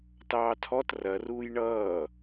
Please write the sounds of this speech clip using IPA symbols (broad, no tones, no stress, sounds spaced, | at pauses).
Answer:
t ɑː tʰ ɔ t r ɐ r uː j ɳ ʌː